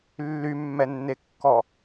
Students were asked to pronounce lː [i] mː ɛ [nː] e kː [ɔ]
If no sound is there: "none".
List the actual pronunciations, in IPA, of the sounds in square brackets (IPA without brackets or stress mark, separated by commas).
y, nː, ɔ